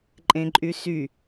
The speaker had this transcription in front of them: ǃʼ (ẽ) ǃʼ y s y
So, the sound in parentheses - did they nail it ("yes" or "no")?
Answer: yes